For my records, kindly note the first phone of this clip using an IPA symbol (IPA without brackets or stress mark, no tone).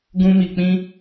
ɡ